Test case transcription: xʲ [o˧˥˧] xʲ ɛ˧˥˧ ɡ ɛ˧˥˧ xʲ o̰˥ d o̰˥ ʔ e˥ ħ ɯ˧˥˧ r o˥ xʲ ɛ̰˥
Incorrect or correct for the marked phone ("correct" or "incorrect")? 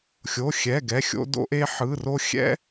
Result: correct